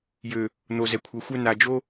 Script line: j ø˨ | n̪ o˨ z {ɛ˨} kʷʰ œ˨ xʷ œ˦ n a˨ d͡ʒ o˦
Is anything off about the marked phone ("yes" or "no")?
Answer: no